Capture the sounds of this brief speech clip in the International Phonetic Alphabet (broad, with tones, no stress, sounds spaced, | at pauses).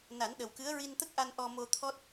n a˨˩˦ n ɗ ə˨˩ w k ɨ˧˥ ə̯ ɹ i˧ n t̪ ə˦˥ k̚ ʔ a˧ n ʔ ɔ˧ m o˧ t̪ʰ ɔ˦˥ t̚